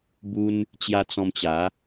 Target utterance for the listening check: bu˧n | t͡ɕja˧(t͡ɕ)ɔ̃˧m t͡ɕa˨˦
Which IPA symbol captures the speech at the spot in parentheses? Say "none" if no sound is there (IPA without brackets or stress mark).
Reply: t͡s